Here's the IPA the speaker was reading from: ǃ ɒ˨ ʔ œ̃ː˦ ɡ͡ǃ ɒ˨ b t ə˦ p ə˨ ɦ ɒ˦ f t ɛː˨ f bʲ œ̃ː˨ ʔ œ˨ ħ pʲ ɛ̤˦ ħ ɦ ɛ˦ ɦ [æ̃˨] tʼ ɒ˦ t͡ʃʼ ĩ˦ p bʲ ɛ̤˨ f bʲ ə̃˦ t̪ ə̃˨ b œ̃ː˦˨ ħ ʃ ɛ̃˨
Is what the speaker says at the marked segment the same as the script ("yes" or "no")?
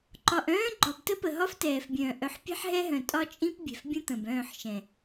no